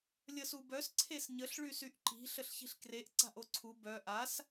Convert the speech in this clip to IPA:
lʲ ə s u b œ s ǀʰ e s ɲ ə ɬ ɭ y s y ʔ ǃ i̤ ɬ ə ɬ ç i̤ ɬ k r e ʔ ǀ a̤ ʔ o ǀʰ u b œ ʔ a s

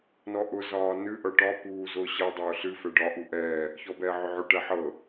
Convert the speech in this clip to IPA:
n ɔ ʔ ʊ z ɒː n ɨ ʔ ɤ ʈ ɒ p uː z ʊː ɕ ɤ dˤ ʊː ɬ ɨ f ɛ ɖ ɒ ʔ u ʔ ɛː | ç ɔ b ɛː ʕ ʊ ʕ ʊ ʈ ɛ ħ ɤ

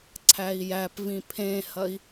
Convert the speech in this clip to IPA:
ǀʰ æ i̯ j æ p v ĩ pʰ ẽ h ɐ i̯

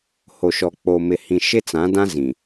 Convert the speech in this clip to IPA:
h o˨ ʃ ɔ˨ k͡p o˨ m ɪ˨ h ĩ˨ ʃ ɪ˦ t͡s ã˨˦ d ã˦ z ĩ˨

